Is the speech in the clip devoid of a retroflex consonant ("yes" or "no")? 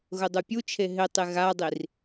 yes